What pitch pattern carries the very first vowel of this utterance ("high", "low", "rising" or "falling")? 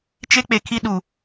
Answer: high